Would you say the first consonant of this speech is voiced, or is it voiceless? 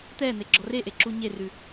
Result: voiceless